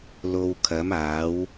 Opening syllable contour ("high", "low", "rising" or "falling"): low